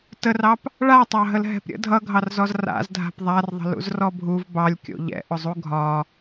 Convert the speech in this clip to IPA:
tərɑp | ɭatˤɑ ɦəlɦɛ̤pɾʲə̰ dʱʌɡʱɑrzɔz ra̰z dʱa̤pðˤarðˤə̤ lṵzrɔbʱuv bɑlʲkʲo̰ ʎɛ̰ʔʊzˤu ɡʱɒ

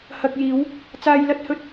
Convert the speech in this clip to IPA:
hɐ˨k̚jiː˨˧w | t͡saː˧jlɐ˥t̚ hɵ˧t̚

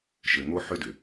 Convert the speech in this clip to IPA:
ʃɘ˨ŋo˧ ħʏ˦dʏ˨

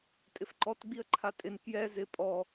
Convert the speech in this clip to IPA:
tʼɪfǃɔt ɡ͡biə̯ǃʰatʼɪn kjɛ zɪ pʼɔ

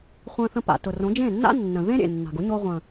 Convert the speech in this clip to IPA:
χʷə̃ː˧θə̃˧pa̰˨ tʊ˨rõ˨˦ d͡ʒẽ˦˨nːa̰˦nːə̃˨ ðẽ˦ɾʲḛ˨nːa̤˨ɡʊ˨˦ ɲo˧ ʁʷə̃˨

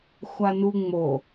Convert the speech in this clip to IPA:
xʷanu ŋ͡mo

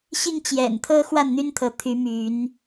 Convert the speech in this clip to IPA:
ɕi˥˨ŋt͡ɕjɛ̰˨˩nt̪ʰɤ˦ xwa˥˨nn̪y˦nt̪ʰɤ˨˦ t̪ʰy˨˦ my˨˦n

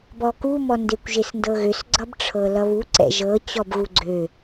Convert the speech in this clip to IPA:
bɔkumɔ ndekʷʒesndɤɣøs ɡ͡ǀʌbʈ͡ʂʰɤlʌβu ǀɛ̰ʒɤ t͡ɕɔbɣuɡ͡ǀø

